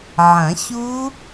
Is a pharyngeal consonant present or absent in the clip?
present